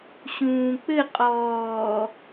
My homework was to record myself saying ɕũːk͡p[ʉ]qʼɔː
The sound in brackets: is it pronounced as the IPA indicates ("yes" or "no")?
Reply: no